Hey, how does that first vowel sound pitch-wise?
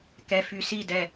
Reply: low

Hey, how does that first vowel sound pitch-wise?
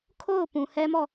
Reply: falling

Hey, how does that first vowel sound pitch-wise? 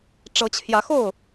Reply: rising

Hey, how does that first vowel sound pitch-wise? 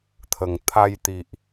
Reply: low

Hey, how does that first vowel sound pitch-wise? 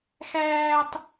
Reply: high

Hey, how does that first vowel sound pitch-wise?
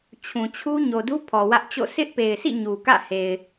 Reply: low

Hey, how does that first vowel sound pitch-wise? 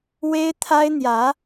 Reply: high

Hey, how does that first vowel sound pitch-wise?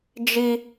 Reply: high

